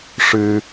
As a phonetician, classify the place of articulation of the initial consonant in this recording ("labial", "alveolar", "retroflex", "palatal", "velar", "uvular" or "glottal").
retroflex